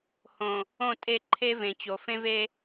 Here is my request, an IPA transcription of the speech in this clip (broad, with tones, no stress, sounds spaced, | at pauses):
h õ˨ | õ˦˨ tʼ e˦˨ ǃʰ e˦ v ẽ˨ t͡ɕ o˨ f ẽ˦ v e˦